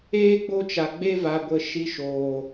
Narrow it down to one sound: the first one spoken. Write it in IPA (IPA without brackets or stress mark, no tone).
eː